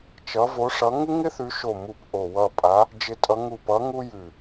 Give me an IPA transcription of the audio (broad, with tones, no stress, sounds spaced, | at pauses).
t͡ʃ ʌ˨˦ v o˨˦ ʂ ʌ˨˦ ŋ ɪ˥ ŋ ɪ˥ θ ʉ˨˦ ʃ o˧˩ m u˧˩ p ʔ o˧˩ w ʌ˧˩ pʼ a˨˦ | d͡ʒ ɪ˨˦ tʼ ʌ˨˦ ŋ u˧˩ p ʌ˨˦ ŋ u˥ j ʉ˧˩